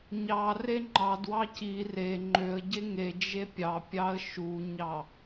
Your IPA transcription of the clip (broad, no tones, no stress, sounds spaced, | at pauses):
ɲ ɑ r e ŋ͡ǃ ɑ d w ɑ c i r e ŋ͡ǃ ø ə̯ ɟ e ŋ e d͡ʒ e pʲ ɑ pʲ ɑ ə̯ ʃ u ɲ ɑ